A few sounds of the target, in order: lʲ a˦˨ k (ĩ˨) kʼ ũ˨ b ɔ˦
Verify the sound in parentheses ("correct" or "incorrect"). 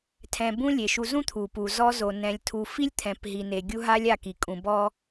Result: incorrect